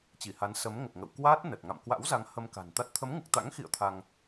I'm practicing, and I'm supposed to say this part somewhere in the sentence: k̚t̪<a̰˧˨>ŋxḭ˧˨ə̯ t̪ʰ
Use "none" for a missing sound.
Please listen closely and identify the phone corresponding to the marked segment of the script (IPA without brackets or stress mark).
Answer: a̰˧˥